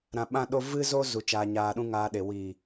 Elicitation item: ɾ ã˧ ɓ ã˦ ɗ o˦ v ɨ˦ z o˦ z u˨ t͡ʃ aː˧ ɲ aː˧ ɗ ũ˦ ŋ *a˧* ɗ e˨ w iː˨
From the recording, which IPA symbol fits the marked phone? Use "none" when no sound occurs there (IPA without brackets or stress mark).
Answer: aː˧